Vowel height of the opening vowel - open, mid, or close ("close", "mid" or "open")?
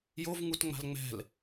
mid